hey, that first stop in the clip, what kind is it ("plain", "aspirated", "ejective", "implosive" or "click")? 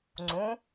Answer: click